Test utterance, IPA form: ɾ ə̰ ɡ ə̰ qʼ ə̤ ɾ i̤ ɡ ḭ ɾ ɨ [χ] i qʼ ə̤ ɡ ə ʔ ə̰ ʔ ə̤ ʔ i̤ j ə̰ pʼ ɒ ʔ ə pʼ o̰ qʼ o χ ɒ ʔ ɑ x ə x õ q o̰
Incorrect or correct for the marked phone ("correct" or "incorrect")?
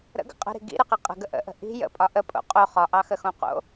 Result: incorrect